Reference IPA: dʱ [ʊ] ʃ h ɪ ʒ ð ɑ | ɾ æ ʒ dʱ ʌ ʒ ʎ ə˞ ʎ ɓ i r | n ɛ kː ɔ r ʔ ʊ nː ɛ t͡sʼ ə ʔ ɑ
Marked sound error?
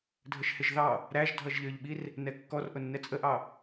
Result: yes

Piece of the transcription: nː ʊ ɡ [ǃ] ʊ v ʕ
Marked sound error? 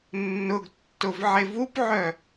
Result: yes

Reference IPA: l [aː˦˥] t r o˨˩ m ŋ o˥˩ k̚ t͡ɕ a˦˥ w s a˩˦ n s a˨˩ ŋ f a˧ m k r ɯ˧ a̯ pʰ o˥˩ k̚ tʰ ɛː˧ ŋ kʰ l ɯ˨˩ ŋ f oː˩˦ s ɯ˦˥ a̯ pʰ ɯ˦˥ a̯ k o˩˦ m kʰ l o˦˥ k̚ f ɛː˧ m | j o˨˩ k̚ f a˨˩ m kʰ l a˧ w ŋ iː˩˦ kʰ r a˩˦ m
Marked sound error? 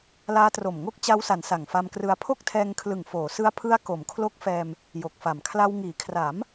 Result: no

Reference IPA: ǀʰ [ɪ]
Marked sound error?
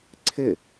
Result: no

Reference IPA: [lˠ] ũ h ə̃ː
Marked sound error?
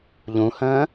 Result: yes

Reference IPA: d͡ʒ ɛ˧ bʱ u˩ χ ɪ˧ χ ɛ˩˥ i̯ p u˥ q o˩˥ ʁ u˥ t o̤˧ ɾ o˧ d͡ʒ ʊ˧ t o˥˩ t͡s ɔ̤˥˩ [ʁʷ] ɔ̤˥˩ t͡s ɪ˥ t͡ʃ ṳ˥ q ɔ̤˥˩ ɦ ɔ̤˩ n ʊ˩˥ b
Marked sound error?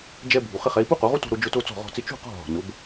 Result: yes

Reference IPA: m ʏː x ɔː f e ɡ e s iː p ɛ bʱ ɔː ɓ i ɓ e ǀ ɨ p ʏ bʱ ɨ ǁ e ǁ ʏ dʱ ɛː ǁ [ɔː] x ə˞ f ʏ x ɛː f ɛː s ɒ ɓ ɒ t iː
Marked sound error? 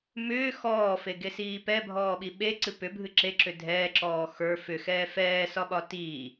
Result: no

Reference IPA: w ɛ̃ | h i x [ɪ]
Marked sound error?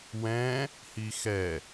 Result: yes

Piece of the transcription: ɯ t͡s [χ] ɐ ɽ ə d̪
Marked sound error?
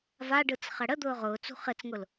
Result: no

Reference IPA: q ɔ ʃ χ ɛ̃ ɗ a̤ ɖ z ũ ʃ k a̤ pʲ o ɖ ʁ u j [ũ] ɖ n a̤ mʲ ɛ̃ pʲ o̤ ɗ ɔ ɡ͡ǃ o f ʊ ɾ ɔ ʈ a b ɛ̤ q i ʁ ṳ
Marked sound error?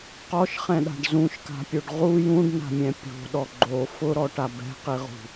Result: no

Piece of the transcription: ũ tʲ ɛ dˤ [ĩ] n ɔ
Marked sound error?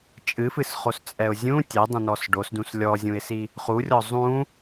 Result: no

